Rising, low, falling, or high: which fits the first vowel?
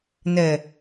low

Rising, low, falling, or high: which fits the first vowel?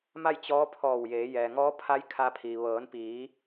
falling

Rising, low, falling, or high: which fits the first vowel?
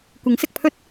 rising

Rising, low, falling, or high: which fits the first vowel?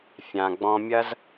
low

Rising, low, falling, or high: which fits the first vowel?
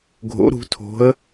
rising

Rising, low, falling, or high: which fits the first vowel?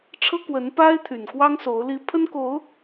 high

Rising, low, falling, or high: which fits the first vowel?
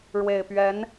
low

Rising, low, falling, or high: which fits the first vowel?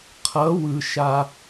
rising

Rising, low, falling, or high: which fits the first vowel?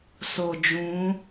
low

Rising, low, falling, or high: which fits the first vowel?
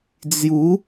rising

